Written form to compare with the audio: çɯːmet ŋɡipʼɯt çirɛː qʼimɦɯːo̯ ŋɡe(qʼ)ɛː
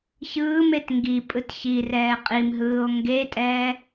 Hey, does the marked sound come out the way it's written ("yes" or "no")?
no